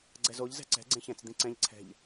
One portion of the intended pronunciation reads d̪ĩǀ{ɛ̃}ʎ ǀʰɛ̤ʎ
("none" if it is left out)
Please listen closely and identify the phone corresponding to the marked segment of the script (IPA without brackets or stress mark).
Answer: ɛ̃